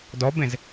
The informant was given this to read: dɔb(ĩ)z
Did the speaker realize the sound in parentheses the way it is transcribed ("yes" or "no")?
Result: no